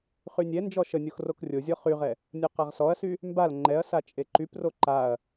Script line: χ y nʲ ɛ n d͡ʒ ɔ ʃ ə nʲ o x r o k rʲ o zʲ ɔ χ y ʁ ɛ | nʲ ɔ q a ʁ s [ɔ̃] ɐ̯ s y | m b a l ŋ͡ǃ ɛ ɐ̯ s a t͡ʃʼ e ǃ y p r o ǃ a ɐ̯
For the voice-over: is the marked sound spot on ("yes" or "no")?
no